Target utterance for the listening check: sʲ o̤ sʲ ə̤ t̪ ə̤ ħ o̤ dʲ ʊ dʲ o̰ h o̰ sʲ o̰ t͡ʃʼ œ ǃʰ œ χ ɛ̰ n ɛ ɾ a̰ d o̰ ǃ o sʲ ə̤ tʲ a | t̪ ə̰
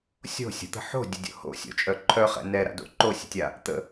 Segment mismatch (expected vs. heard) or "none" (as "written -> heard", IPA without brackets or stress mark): none